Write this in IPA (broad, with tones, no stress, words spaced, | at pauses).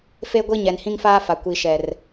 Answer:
fe˦ɡʷi˦ ɲɛ˨nhĩ˦ŋfaː˦fa˨ kʷi˨ʃɛ˨r